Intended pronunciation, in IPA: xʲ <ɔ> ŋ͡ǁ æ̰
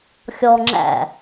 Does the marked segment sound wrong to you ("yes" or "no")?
no